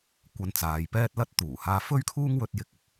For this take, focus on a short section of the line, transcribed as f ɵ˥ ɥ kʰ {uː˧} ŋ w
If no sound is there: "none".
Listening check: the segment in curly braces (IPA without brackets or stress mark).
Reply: uː˥